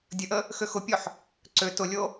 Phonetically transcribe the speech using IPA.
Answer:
dʲəʔə | xøxʊpʲɔħ | ǀø tʊlʲo

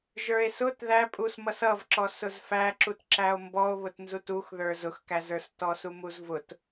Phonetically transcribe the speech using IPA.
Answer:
ʒə˞e̯sʊt ðæpʼus mʌsʌvǁɔ sʊzfæǁutǁæo̯ mbɔo̯βʊtnzut uxðə˞ zʊxkæzə˞s tɔsumuzvʊt

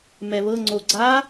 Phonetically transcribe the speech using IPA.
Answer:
mɛβɤ ŋ͡ǀoɡ͡ǀa

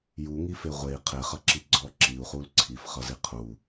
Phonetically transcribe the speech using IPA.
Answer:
juŋife ʁʷei̯ qʰeχʌǁi ɡ͡ǀɔ ǁiu̯χul ǀʰifχʌzi qʰu

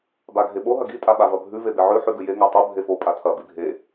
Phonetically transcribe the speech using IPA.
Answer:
baɡʱeɓo ɦɐɡi tʼaɓavɐbʱʉ vebeʕʉ ħʉɡʉje ŋatˤo bʱefo pʼatʰɐ bibʱe

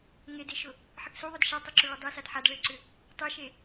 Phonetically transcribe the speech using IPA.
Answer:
ŋedeʃʊ | ħɘksuðˤʊd ʃatˤʊǁʏ ɭʏdˤesad ħad ɭɘǀʏ | tˤeʃe

